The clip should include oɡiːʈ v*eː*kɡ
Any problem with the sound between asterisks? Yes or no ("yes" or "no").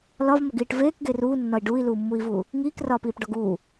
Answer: no